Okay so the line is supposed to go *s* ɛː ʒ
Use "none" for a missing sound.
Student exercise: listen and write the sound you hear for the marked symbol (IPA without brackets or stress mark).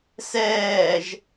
s